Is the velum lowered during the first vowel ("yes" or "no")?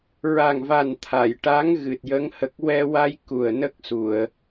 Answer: no